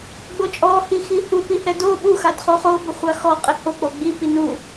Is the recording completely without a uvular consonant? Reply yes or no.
no